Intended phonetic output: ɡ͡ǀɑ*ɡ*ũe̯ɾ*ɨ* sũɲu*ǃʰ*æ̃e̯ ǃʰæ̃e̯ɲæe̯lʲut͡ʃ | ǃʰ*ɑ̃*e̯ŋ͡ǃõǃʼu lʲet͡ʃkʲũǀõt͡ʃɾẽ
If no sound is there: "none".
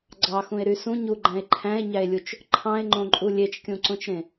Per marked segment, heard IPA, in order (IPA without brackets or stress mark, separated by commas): x, y, ɡ͡ǃ, ɑ̃